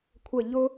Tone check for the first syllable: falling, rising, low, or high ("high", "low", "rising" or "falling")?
falling